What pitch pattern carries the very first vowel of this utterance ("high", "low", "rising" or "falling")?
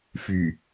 low